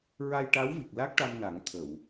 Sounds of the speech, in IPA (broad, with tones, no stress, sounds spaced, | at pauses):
ɹ a˧ j ʈ a˧˥ w v i˨˩ k̚ l a˦˥ k̚ ʈ a˧ m n a˨˩˦ ŋ t̪ʰ ə˨˩˨ w